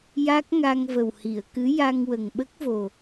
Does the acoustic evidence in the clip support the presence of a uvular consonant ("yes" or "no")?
no